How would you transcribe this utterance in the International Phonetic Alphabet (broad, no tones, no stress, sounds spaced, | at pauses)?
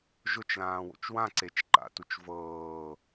ʒ ʊ t͡ʃ l ãː w o̰ t͡ʃ w ã ǀ e t͡ʃ ǃ a̰ t u t͡ʃ v ɤː